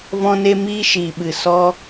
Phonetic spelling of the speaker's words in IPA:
v ɔ̃˧ n e˧ m iː˧ ʃ iː˨ ɓ ɨ˨ s ɔ˧

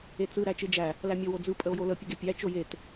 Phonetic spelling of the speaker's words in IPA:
e t͡s ɯ ɾ æ t͡ʃ ɯ d͡ʒ æ | l æ mʲ ɔ w o d͡z ɯ pʼ ə o̯ j o l ə pʲ ə ɡ e pʲ æ t͡ʃ o j e t

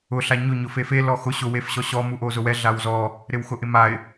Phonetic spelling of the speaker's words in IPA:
ʊ ɬ a ɲ ʊ ɲ ʊ f e f e l ɔ x ʊ ɕ ʊ w e f ɕ ɔ ɕ ɔ m u ʔ o z ʊ w ɛ ɮ a w z ɔ | ɾ ɪ w x ʊ ʔ ɪ m a ɪ̯

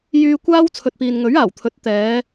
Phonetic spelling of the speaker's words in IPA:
j yː˧ kʷ aː˥ w t͡sʰ ɵ˨ t̚ p iː˨ n ŋ ɵ˨˥ ɥ aː˨˩ w t̪ʰ ɵ˨˥ t̚ t̪ ɛː˨˧

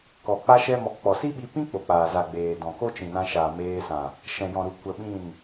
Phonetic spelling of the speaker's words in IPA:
k ɔ˨ k͡p a˦ ʃ ɛ˦ m ɔ˧ k k͡p ɔ˨ s i˦ ɓ i˧ p ĩ˦ k͡p o˨ k͡p aː˨ z a˨ ɡ͡b eː˨ d ɔ̃˨ k o˦ t͡ʃ ĩ˨ n ã˧ ʃ aː˨ m eː˧ s ã˨ | ʃ ɛ̃˨ j ɔ̃˨ ɾ u˨ kʷ ə˧ ɓ ĩ˦˨ n

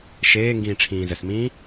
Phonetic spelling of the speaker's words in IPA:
ʃ eː ŋ ɡ ĩː ʈ͡ʂʰ ĩː z ə s m ĩː

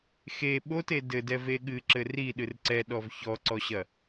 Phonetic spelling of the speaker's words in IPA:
x e ɓ o t e d ɘ d ɛ v e ɠ ɨ ǁ ɘ r i ɗ ɨ r ǀ ɛ ɗ ɔ v ç ɔ ǀ ɔ ɕ ɐ

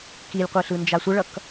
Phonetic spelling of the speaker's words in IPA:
k i lʲ qʷ e ɬ ɯ n d͡ʒ a sʷ ə ɭ ʌ k

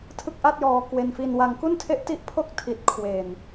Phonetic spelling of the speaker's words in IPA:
tʰ ɯ˥˩ k̚ ʔ a˥˩ t̚ j ɔː˧ k w e˧ n f i˧ n w a˧ ŋ k u˥˩ n tʰ e˦˥ ʔ t i˥˩ ʔ pʰ o˥˩ k̚ tʰ i˨˩ t̚ kʰ w e˨˩ n

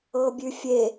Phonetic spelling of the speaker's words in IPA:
ɤ bʲ ʉ fʲ e

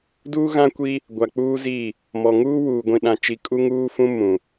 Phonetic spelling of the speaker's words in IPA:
d uː˦ ɣ ã˦ kʷ i˦ | ɡʷ a˨ k͡p uː˦ z iː˦˨ | m ɔ˨ ŋ uː˦ w uː˨ ɡʷ ĩ˨ ɗ ã˨ t͡ʃ i˨ kʼ u˦ ŋ uː˦ f ũ˦ m ũ˨

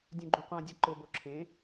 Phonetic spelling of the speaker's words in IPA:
dʲ ũ ɡ͡ǃ õ qʷ ã dʲ a ǃ ʊ b o ǁʰ ẽ

